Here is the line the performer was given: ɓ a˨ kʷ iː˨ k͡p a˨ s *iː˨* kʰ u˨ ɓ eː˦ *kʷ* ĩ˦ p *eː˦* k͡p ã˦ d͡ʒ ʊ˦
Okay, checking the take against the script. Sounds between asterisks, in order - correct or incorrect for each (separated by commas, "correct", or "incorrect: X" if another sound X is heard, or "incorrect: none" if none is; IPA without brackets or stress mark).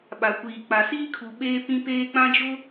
incorrect: iː˦, incorrect: p, correct